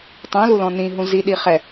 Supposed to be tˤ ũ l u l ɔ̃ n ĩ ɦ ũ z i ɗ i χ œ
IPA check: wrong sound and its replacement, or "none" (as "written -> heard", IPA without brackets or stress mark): œ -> ɛ